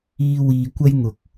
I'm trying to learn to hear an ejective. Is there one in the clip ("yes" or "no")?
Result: no